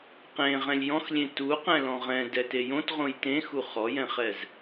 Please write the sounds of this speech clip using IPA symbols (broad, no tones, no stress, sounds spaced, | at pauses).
q ẽ ʁ ɛ̃ lʲ j ɔ̃ x lʲ ẽ t u q ɛ̃ l ɔ̃ ʁ ɛ̃ d ɛ t e j õ t ʁ õ j t ẽ x u χ ɔ j ɛ̃ χ ɛ z